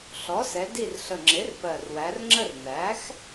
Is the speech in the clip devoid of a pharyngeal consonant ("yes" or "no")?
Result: yes